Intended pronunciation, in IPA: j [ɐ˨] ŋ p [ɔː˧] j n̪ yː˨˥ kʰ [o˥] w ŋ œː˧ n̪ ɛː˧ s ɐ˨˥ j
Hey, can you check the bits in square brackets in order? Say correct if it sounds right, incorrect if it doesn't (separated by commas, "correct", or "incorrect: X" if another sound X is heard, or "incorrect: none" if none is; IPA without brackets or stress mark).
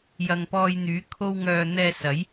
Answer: correct, correct, correct